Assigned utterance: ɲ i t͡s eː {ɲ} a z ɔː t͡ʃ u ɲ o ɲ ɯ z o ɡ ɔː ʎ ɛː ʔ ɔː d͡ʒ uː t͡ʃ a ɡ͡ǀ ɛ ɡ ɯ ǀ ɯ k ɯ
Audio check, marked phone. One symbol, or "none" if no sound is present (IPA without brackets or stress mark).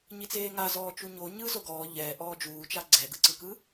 ŋ